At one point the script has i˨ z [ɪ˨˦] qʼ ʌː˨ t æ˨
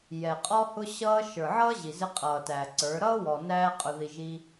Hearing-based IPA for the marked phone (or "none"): ɪ˧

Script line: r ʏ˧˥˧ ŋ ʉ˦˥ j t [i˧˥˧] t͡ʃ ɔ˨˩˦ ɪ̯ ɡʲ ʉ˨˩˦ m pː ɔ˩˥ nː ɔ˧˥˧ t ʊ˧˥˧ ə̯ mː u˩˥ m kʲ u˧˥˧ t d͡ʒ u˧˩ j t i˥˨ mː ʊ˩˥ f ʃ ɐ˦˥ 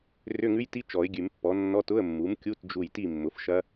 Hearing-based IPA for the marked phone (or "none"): i˦˥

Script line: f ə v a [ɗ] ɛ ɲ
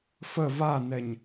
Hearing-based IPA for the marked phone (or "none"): n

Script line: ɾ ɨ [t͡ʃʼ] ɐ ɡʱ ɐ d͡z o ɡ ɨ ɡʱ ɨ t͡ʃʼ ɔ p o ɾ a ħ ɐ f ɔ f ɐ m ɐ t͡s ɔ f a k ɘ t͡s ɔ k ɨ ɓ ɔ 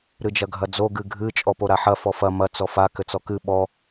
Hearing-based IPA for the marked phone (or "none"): d͡ʒ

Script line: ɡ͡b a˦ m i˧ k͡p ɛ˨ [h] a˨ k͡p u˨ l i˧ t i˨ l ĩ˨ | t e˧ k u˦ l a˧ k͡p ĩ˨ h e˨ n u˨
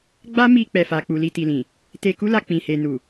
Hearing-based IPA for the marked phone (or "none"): f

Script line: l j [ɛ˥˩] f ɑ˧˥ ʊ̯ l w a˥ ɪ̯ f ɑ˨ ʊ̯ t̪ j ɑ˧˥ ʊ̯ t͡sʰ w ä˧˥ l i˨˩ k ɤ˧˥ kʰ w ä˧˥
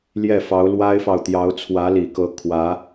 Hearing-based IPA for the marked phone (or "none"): ɛ˥˩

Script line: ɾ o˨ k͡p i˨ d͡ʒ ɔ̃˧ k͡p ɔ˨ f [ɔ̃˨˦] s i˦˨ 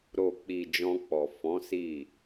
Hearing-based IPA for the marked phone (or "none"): ɔ̃˨˦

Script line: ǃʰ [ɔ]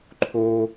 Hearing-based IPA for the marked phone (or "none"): o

